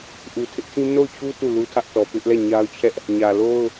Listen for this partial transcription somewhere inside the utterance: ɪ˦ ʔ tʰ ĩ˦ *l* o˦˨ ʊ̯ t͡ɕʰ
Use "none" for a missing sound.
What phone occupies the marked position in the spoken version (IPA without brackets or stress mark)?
n